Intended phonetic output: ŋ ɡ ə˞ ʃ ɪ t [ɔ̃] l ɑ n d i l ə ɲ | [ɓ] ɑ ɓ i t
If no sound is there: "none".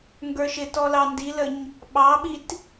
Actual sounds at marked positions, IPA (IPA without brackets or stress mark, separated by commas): ɔ, ɓ